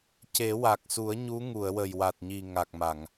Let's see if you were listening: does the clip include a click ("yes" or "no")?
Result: no